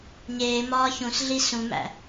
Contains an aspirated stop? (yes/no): no